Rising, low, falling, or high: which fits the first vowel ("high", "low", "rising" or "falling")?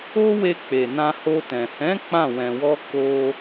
high